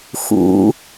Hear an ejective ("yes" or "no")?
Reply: no